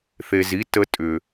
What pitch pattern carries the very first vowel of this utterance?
low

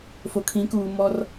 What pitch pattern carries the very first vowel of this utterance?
low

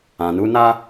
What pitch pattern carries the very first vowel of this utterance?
low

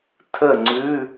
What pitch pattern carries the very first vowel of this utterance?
falling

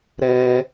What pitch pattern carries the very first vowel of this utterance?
high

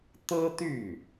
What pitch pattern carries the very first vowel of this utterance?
high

